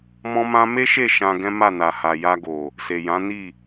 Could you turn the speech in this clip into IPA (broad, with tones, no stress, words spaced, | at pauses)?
mɔ̃˦mã˦ me˦ʃe˦˨ ʃã˧ɡɛ̃˦ma˦˨na˨ ha˨ja˧ɡo˨ | se˨jã˨˦ni˦˨